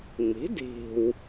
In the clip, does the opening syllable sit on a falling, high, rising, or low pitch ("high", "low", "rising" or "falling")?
rising